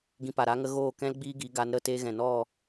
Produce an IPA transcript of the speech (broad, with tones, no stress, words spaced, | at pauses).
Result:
ɡĩ˧pa˨ ɾa˧ŋə˧ ɣoː˦˨kɛ̃˦l ɡ͡biː˦ɡi˨˦ɡa˨˦n ɾə˦˨te˧ɣɛ̃˨ nɔ˦˨